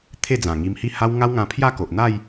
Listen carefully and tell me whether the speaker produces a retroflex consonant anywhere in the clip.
no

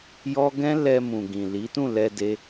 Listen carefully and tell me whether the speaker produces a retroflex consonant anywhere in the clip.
no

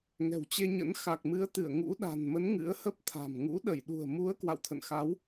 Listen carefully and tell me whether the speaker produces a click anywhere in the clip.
no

